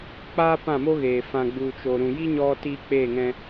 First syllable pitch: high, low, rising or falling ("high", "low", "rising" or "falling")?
high